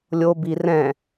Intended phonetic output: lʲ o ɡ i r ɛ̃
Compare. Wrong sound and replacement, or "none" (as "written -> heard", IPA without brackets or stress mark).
ɡ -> b